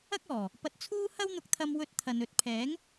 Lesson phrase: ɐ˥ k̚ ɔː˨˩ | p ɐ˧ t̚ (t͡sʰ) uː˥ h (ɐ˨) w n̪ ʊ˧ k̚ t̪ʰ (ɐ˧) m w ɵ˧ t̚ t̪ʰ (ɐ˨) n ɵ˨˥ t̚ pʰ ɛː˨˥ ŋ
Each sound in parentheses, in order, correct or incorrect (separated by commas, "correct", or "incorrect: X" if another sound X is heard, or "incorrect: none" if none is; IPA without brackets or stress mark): correct, incorrect: ɐ˥, correct, correct